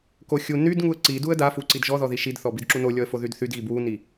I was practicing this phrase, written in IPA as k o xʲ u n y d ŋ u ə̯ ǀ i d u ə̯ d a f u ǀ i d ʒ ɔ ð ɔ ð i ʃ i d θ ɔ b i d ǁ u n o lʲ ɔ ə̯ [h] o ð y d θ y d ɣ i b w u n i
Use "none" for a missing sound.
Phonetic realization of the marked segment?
f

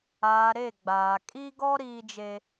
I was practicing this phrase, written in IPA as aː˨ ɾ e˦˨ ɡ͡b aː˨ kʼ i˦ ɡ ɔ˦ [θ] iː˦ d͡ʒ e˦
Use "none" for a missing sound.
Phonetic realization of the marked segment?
ɾ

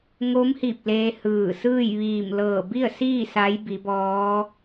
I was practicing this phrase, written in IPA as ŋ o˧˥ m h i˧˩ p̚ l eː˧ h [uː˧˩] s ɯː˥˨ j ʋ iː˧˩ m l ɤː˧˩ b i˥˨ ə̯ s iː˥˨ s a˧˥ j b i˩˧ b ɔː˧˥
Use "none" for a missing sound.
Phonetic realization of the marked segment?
ɯː˧˩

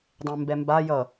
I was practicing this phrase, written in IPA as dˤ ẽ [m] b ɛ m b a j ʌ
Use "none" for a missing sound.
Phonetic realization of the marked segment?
m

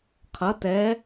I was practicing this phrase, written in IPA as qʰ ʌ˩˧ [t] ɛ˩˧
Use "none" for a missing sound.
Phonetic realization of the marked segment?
t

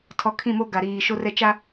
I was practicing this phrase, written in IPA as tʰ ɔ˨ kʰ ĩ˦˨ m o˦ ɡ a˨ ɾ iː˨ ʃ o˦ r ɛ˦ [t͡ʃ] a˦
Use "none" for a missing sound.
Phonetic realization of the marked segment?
t͡ʃ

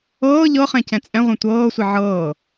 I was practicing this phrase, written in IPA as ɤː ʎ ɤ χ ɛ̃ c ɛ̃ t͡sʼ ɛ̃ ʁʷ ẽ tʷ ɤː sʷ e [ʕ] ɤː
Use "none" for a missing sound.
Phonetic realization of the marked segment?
ʕ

